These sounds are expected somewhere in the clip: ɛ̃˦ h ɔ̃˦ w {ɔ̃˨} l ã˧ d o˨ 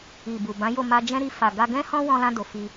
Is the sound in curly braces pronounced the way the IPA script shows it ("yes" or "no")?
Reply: no